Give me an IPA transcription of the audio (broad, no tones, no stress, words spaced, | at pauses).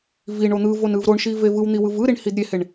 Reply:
viɳo n̪ɯ vonɯvɾoɳʃi vevɯwn̪i wɯvɯɾiɳ hidɾʲeheɳ